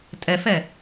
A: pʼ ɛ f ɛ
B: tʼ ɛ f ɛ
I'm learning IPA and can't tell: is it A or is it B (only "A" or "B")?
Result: B